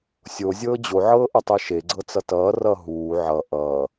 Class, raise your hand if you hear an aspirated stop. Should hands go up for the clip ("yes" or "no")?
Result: no